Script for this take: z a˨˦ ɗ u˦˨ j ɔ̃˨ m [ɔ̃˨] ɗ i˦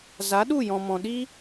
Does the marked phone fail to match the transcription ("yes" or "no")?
no